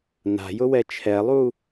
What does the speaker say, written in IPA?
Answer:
na̤jʊwɛ t͡ʃʰɛlˠu

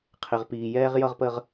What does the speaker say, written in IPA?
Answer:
qʰɪ˨ʁ piː˨jɛː˦ʁ jʌ˦ʁpə˦ʁ

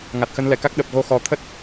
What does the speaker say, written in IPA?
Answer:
ŋa˨˩t̚xə˧nlɛ˧˩ka˦˥k̚ ɗə˨˩p̚ɣo˧xɔ˨˩ t̪ʰə˦˥t̚

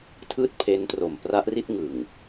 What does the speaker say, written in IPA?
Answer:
tʰɯː˥˩t̚pʰe˦˥ntro˨˩m pra˦˥ʔri˥˩t̚ ŋɯ˨˩ŋ

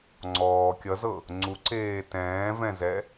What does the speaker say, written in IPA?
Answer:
ŋ͡ǀɔː kʲʌzɤ | ŋ͡ǀuǀeː tɛ̃ːvɛ̃zɛ

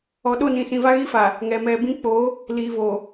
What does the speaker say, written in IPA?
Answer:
ɔ˨ɗo˦˨nĩ˨sĩ˨ va˦ɣi˦fa˨ | ŋɛ˨mɛ˨bĩ˦ k͡po˨˦ | liː˨vo˨

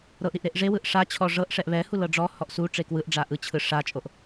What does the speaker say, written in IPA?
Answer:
ɾɤʔɾiʔ ɾeʔʐewɯʔ ʂat͡ɕʰɔ ʐɤʔʂɛʔ βɛhu lɤɖ͡ʐɔhɔʔ su ʈ͡ʂekwɯʔɖ͡ʐa ʔɯt͡ɕʰɯ ʂat͡ʃʼoʔ

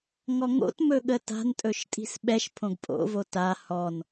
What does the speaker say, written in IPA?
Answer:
ŋɔŋo̰tmɵ ɠəta̤ntʼɵʃ tʼi̤sɓɛʃpʰõɡ pʼo̰vo ta hɔn

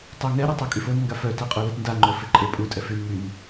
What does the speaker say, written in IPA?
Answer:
tˤuŋɛ ɾøtˤœkʼyfon ŋɡafœt aqʼolɛtnda ŋ͡ǃœfeǃʼe pʼu tʼɛfyn myn

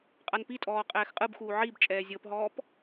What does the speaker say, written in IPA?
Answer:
qʼanpitʼɔː qʼɛːxqʼɯbxuː ʕib t͡ʃʼɛːzʲɤpɦɔːp

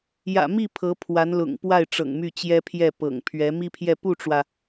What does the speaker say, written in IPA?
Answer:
jä̰˨˩mi˥˩ pʰɤ˧˥pʰwa˧˥nlʊ̰˨˩ŋpwa˥˩ɪ̯ ʈ͡ʂɤ̰˨˩ŋmy˥˩t͡ɕjɛ˥pʰjɛ˥˩ pɤ̰˨˩ŋpʰɥɛ˧˥ mi˥pʰjɛ˥˧ pu˥˩ʈ͡ʂwä˩

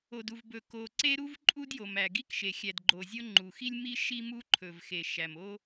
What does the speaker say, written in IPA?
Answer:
o˩du˩vbɵ˩ ko˩ǀe˥ ɾu˥vǃʼu˥d jo˩mæ˩ɡi˥kʃe˩ xʲæ˩dɡ͡ǃo˩zʲo˥ ŋ͡ǃu˩xi˥lʲmi˥ ʃi˥mu˥ ǃʰɵ˩vxe˩ ʃæ˩mo˥

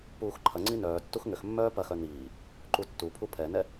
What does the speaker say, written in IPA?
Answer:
puːxǃʰɐŋ͡ǀi nœːtːux ŋʏxmːœː pɐxœ niː | ǃutːupʰu pʰɛnɛ

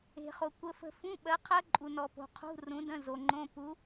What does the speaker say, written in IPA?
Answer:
e̤˨χo˨kʷə˧˥˧fə̤˥˨ fũ˧˥˧ɓɜ˨˥qʰɜ˦˥ ǃʼu˨nɔ˨po̤˨ qʰṳ˧˥˧rũ˨˥də̃˧˥˧ zo˨ŋ͡ǃõ˧˥˧ pu˨˥

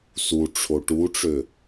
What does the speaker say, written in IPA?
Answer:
suʈ͡ʂʰo ʈuʈ͡ʂø

